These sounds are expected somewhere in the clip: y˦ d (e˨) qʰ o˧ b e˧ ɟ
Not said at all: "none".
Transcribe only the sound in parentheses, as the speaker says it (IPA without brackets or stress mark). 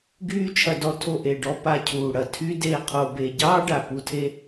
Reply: e˦˨